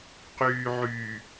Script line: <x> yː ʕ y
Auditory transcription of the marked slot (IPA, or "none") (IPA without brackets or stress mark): q